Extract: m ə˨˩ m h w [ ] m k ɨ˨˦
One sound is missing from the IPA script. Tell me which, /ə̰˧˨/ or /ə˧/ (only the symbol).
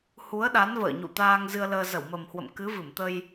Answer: ə̰˧˨